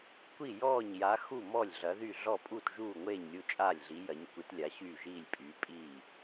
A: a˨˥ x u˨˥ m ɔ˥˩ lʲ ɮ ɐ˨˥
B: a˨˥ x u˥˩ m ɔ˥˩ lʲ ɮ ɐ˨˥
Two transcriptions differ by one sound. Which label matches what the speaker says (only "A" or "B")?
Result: B